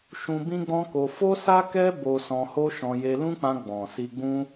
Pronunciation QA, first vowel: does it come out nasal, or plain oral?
nasal